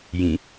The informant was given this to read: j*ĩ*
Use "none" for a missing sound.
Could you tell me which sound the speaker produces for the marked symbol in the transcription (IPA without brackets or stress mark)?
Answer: ĩ